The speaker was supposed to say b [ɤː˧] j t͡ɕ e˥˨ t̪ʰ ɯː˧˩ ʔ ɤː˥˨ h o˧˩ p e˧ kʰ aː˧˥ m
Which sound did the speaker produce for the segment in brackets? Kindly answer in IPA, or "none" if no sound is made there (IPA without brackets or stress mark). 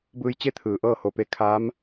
ɯː˧